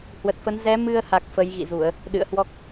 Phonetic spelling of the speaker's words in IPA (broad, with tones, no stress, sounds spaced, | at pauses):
h w ə˨˩ t̚ f ə˨˦ n z ɛ˨˦ m ɨ˧ ə̯ h a˨˩ k̚ f ə˨˦ j ɣ ḭ˧˨ z u˧˩˨ ə̯ | ɗ ɨ̰˧˨ ə̯ h w ɔ˦˥ k̚